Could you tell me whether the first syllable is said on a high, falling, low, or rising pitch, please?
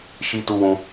high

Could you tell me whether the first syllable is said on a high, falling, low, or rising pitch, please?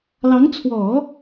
rising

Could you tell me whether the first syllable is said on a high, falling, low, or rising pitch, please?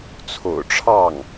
low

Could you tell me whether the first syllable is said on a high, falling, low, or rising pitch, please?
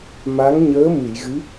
rising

